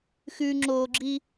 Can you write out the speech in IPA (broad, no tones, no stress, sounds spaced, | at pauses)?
x ʉ ŋ͡ǁ oː ɡ͡ǁ i